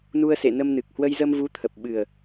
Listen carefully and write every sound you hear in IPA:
n u˧ ə̯ s ḛ˧˨ n ə˧ m n ɨ˨˩ k̚ h w ə˧ j z ə˧ m v u˨˦ t̪ʰ ə˨˩ p̚ ɓ ɨ˨˩ ə̯

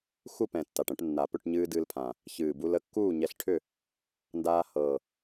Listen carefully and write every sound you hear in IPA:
x u˥˨ p ɛ̃˨˩ tː a˨˩ ʈ ɛ̃˧ ʈ nː a˨˩ p ʏ˥˨ ʈ ɲ ɨː˧ d ɨː˧ l pʰ ã˨˩ | ç ɨː˨˩ b u˧ l ə˥˨ kː uː˥˨ ɲ ɛ˧ ɬ ʈʰ ʏ˥˨ | n d aː˧ h ɤ˨˩

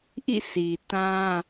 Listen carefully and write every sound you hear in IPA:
ʔ ḭ˦˨ sʰ i˨ t ã˦

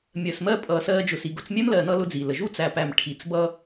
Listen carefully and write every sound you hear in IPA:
mʲ ɜ˨ s m ɜ˧ pʼ ʌː˨ s ɜː˧ d͡ʒ ʊ˨ s i˨ ɡ ʊ˧ t͡s mʲ ɛ˦ m l ɜ˨ n ʌ˧ l ʊ˦ d͡z i˨ l ə˨ ʒ u˦ t͡s æ˨ p æ˨ m ʈʰ i˨ t͡s b ʌ˦

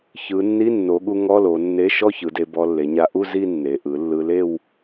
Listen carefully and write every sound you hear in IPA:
ç ɯ˩˧ nː i˧˥˧ nː o˩˧ ɠ u˧ ŋ ɔ˧˥˧ l o˩˧ nː e˧˥˧ ʃ ɔ˥˧ ç ɯ˩˧ d e˧ b ɔ˧ lː e˩˧ ɲ a˧ ʔ u˥˧ z i˥˧ nː e˩˧ ʔ ɯ˩˧ lː ɯ˧ l e˥˧ w

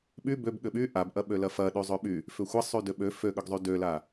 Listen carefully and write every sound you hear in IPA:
ɓ y b ø b ɠ ʏ ɓ y ʔ a b ʔ ɐ ɓ ø l ɐ f ɐ ɗ y zˤ ø ɓ y | f ʏ xʷ ɐ sˤ y d ʏ ɓ ø f ø ɠ ʏ ɡ zˤ y d ø l a

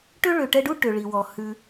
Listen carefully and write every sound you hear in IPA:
ʈ ø˥ ɭ ø˨ ʈ ɛ˦ ɖ u˥ ʈ ø˩ ɭ i˩ w ɔ˩ h ʉ˨

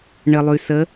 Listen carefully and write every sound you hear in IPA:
ɳ ə˩ lˠ ʉ˩ s ə˨˦

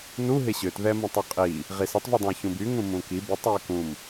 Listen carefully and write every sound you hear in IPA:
n u ɦ ɪ ɕ ø t ð ɛ m ũ tˤ u qʼ i | ʁ i s ɐ tˤ v y dˤ ũ ə̯ ç ũ b y ŋ ũ m ũ k i b i tˤ y ə̯ k ũ m

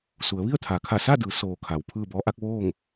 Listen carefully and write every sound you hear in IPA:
s u˩˧ ə̯ ʋ i˥˨ ə̯ t̪ʰ a˩˧ kʰ a˧˩ s a˥˨ d ɯː˩˧ s oː˩ kʰ a˩˧ w pʰ ɯː˥˨ b ɔː˧˥ ʔ a˧˥ k̚ ʋ oː˥˨ ŋ

